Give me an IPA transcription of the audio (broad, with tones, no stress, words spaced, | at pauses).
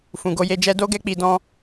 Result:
fũ˨ɡo˧je˧d͡ʒɛ˦ do˦ɡɛ˦ k͡pi˧dɔ̃˦